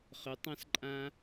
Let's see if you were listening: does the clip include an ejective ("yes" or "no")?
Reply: yes